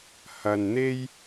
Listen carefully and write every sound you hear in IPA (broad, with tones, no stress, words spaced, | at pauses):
hɐ˨nn̪e˥j